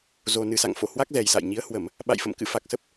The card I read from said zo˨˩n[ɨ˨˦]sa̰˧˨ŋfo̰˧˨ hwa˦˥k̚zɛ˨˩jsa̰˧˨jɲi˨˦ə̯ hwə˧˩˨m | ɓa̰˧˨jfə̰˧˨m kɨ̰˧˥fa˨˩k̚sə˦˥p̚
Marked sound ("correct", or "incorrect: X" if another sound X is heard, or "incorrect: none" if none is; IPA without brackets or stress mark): incorrect: ɨ˨˩